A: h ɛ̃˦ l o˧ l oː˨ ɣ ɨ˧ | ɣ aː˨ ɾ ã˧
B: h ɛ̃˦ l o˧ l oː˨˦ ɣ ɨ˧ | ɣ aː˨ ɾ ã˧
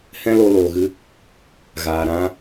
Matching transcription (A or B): A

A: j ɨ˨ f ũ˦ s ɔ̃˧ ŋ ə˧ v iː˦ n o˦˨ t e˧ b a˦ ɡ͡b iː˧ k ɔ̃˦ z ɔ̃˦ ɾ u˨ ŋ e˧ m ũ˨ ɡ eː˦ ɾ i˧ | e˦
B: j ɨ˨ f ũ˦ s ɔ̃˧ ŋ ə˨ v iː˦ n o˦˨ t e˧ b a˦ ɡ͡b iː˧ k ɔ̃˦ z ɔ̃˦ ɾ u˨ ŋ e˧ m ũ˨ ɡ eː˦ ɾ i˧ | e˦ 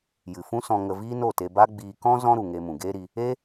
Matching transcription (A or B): A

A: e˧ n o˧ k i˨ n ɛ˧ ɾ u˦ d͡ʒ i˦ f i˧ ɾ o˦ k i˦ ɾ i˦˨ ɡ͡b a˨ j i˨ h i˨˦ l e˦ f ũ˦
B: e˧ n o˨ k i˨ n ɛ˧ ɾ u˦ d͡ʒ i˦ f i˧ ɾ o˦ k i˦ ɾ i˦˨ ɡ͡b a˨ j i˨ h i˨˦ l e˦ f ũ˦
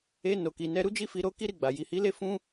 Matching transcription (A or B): B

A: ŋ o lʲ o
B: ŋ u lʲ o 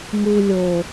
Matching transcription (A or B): B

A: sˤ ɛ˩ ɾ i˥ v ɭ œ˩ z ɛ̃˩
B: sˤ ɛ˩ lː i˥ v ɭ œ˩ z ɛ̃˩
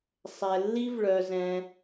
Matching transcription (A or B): B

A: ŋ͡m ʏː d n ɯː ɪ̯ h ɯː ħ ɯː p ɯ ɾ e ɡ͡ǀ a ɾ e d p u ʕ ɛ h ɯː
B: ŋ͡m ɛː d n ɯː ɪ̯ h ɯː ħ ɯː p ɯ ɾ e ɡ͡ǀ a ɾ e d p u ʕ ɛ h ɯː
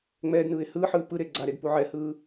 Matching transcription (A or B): B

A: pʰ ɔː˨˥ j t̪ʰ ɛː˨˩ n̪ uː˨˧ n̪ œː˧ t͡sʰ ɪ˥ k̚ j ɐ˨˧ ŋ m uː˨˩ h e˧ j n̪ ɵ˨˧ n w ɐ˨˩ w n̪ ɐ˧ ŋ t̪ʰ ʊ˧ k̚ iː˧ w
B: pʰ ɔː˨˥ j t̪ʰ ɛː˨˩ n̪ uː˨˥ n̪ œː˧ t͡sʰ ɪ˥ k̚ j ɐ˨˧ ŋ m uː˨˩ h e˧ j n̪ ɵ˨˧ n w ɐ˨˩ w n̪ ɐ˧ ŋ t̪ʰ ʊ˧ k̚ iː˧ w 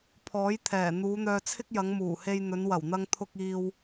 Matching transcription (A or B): A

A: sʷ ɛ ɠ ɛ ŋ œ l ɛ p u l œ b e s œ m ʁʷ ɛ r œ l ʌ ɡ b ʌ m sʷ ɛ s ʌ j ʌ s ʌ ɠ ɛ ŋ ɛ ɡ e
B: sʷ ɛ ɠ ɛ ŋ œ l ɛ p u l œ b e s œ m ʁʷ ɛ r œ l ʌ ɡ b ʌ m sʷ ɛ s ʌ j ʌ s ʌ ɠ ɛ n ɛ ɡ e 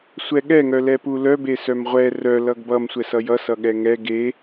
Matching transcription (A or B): A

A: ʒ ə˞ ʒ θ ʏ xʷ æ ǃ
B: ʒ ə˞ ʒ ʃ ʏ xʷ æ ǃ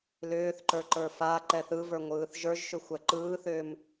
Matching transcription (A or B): B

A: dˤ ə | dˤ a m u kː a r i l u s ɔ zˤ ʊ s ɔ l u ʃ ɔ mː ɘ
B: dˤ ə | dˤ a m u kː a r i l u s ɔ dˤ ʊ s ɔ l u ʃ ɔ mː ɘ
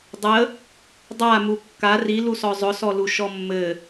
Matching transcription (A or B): A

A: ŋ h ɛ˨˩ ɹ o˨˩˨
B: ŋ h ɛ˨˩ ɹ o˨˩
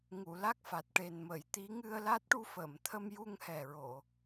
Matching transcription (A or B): A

